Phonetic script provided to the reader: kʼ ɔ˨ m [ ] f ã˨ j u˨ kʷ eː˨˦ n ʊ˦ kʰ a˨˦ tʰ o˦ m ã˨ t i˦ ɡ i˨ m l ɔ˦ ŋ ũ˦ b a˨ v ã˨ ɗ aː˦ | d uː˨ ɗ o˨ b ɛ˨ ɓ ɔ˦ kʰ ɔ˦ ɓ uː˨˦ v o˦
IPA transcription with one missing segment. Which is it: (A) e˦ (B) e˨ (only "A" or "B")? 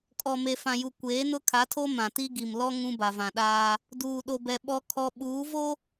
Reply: B